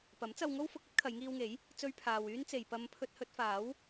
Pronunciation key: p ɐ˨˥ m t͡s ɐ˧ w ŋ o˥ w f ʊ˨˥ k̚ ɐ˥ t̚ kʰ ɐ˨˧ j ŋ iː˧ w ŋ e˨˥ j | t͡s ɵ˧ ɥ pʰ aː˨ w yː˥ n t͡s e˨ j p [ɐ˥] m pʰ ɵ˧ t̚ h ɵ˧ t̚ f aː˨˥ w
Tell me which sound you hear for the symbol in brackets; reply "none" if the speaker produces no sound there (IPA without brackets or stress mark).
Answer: ɐ˧